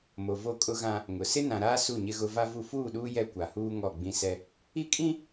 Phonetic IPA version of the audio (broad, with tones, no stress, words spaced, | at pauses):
mo˨ vo˦˨kʼʊ˦ɣã˦ | ŋʊ˨ sɪ˦nã˨ɾaː˦ su˦˨ɲɪ˦ɣʊ˦ va˦vu˦ fuː˦˨ɗuː˦ jɛ˦kʷa˨huː˦ ŋɔ˦˨ɡ͡bĩ˦sɛ˦ | i˦kʼĩ˦